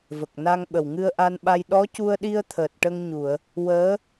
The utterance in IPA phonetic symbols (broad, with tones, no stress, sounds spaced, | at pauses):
v ə˨˩ k̚ n a˧ ŋ ɓ ə˨˩ w ŋ ɨ˧ ə̯ ʔ a˧ n ɓ a˧ j ɗ ɔ˧˥ c u˧ ə̯ ɗ i˧ ə̯ t̪ʰ əː˨˩ t̚ ʈ ə˧ ŋ ɲ u˨˩˨ ə̯ | w əː˧˥